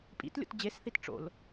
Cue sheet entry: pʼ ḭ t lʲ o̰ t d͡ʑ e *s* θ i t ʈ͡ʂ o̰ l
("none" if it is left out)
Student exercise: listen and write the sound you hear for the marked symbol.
s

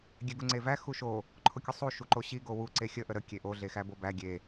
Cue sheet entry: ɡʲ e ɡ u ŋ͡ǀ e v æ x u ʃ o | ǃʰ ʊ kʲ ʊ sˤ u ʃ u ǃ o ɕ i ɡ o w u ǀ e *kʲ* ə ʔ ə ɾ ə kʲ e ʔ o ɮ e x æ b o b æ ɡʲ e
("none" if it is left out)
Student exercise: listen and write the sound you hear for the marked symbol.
xʲ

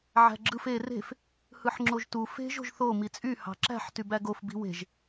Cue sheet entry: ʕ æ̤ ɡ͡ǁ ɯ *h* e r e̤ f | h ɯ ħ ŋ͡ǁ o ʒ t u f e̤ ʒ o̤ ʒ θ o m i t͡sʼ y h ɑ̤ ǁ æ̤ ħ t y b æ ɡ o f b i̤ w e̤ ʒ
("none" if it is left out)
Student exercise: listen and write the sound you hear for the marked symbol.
f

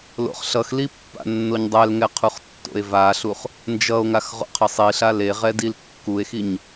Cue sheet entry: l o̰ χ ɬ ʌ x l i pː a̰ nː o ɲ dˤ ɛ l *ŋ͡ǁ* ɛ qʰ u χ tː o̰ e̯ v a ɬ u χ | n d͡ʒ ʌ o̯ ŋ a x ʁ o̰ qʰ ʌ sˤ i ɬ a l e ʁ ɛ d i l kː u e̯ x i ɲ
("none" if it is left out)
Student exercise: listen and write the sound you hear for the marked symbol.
ŋ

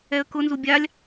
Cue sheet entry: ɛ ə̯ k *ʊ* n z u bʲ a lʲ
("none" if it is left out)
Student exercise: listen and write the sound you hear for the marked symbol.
ʊ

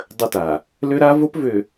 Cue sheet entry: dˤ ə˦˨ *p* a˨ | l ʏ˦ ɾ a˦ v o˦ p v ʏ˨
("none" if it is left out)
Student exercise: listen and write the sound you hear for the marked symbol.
t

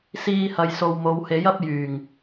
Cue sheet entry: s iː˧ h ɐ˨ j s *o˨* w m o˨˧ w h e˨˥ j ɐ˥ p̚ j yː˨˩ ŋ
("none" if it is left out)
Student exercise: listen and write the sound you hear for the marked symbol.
o˨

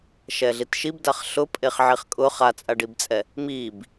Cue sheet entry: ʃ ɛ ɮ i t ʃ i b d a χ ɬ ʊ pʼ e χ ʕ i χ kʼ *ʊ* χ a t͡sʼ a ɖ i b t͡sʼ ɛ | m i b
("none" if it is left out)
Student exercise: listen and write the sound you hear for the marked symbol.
ʊ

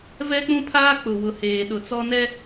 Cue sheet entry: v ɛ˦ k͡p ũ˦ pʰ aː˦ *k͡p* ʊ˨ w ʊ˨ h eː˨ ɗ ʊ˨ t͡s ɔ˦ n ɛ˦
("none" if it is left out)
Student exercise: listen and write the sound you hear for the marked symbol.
k͡p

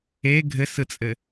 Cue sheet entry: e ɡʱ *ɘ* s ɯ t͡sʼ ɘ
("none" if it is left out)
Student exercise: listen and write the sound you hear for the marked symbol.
ɘ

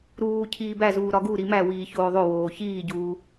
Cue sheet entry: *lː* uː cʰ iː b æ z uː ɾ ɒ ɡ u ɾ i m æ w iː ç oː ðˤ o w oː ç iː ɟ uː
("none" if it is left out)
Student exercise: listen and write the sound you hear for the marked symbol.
ɾ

